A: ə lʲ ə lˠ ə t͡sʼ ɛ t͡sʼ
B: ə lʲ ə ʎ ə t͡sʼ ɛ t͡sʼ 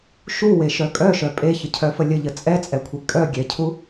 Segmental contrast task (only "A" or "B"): B